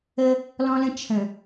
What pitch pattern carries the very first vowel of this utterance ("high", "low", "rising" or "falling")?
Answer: high